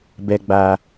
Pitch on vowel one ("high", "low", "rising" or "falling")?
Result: low